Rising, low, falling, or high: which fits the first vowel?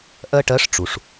high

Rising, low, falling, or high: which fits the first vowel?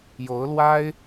rising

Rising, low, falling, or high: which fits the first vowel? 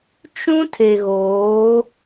high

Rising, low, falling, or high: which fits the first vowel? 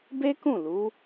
high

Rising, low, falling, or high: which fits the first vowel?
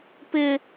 high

